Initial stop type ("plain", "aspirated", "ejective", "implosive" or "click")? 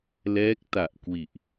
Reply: plain